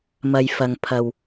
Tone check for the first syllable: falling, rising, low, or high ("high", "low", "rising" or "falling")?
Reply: low